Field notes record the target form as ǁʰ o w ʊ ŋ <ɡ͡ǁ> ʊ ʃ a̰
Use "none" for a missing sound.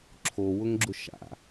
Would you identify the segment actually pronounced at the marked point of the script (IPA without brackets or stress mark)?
ɡ͡ǁ